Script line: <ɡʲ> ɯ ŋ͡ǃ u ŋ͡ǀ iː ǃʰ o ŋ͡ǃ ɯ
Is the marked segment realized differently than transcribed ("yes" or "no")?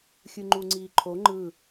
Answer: yes